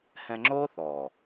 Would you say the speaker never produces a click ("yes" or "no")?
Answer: no